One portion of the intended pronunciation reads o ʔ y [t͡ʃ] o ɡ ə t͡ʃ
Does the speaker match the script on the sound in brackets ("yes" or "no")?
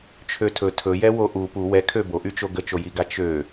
yes